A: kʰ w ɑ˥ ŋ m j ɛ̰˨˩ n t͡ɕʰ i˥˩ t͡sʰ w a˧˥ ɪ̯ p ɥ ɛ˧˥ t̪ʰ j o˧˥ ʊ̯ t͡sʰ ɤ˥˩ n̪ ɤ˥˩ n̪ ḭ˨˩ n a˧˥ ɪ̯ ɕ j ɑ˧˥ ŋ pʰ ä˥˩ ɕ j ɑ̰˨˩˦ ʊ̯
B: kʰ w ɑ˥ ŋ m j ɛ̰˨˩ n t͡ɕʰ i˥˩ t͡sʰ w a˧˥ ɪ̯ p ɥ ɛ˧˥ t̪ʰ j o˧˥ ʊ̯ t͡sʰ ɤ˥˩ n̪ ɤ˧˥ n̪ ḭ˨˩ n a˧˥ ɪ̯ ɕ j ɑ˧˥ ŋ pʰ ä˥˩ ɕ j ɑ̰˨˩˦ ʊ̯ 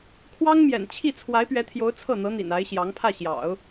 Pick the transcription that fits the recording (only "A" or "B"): B